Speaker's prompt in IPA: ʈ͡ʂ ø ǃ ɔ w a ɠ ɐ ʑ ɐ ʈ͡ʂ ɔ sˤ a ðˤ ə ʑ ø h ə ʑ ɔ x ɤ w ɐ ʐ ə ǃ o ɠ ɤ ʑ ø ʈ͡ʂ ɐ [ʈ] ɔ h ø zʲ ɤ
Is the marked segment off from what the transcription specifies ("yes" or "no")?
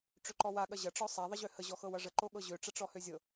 yes